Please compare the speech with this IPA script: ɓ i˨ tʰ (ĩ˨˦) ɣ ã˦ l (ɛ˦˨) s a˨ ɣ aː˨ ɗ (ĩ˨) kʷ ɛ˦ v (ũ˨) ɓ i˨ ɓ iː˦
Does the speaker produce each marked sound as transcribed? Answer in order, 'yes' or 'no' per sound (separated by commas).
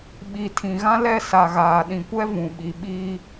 no, yes, yes, yes